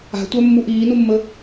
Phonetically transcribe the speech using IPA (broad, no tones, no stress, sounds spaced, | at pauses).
a̤ tʷ œ mː u ʔ iː n u mː ə